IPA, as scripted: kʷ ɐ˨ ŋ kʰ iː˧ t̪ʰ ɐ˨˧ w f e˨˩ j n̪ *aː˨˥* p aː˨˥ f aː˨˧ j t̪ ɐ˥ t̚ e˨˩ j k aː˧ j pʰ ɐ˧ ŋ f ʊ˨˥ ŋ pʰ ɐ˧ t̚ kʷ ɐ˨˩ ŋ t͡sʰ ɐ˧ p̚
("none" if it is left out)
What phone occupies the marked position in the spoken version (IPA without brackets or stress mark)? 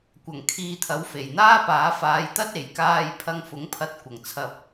aː˥